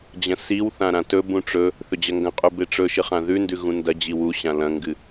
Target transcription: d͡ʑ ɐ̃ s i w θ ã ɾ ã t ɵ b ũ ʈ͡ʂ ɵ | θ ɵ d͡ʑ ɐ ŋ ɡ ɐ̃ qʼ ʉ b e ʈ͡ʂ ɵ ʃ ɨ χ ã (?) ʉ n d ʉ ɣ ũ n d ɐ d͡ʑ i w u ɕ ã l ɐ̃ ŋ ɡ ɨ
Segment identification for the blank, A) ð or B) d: A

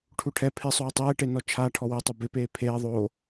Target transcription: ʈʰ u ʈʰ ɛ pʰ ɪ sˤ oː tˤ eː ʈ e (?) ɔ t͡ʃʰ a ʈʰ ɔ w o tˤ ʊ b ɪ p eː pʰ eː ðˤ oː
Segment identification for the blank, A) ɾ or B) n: B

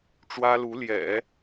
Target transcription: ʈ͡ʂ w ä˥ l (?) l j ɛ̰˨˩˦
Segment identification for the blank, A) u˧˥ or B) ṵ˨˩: A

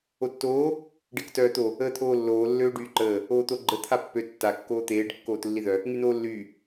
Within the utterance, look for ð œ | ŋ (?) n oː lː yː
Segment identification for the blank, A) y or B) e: A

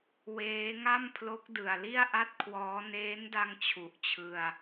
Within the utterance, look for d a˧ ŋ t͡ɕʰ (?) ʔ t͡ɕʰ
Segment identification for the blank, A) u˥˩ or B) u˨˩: B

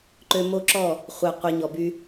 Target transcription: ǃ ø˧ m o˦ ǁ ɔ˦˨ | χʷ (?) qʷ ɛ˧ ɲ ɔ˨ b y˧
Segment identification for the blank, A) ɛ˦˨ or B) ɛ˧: B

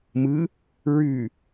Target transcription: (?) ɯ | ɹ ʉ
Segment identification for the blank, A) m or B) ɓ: A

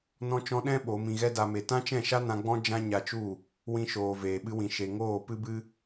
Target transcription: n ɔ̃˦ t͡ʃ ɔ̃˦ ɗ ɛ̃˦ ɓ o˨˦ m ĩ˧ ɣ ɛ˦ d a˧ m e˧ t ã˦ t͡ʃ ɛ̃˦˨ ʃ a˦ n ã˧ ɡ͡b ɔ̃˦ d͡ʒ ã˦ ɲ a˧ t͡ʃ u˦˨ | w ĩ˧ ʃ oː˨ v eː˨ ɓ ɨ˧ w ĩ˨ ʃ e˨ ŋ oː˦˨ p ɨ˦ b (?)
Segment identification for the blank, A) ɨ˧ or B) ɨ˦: B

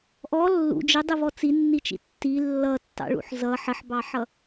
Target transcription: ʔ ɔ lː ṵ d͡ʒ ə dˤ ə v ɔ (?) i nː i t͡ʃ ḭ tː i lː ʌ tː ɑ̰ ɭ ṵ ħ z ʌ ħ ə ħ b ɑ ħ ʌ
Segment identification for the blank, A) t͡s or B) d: A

